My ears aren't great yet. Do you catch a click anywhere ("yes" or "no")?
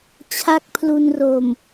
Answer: no